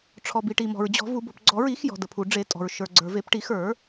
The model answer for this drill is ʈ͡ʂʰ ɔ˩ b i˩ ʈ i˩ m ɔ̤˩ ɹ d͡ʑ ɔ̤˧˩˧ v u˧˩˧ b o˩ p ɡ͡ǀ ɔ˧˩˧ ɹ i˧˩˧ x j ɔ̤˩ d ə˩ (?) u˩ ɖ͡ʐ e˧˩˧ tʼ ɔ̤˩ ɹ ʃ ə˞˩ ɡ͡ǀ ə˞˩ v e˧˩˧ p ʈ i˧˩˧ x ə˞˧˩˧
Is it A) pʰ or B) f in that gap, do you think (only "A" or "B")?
A